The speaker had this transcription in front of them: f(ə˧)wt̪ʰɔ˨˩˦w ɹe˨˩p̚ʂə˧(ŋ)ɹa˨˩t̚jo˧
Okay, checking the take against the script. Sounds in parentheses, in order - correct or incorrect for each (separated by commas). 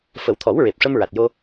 incorrect, incorrect